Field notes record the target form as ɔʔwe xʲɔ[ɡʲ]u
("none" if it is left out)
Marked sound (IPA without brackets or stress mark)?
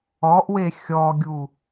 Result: ɡʲ